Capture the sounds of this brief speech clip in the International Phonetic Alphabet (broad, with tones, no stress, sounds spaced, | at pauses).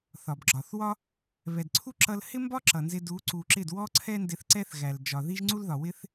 θ ɒ˨ b ɡ͡ǁ ɒ˨ θ w ɒ˦ | β ɛ˨ d ǀʰ u˦ ǁ ʌ˧ l h ɪ˦ m b ɒ˦ ǁ ʌ˨ n z ɪ˧ d u˨˦ ǀ u˨ ǁ ɪ˦˨ d w ɔ˦ ǀʰ ɛ˦ n d ɪ˧ θ ǀ ɛ˦ θ ɣ æ˨ l d͡ʒ ɒ˨ ð i˦ ʒ ŋ͡ǀ u˦ l ð ɒ˨ w ɪ˦ θ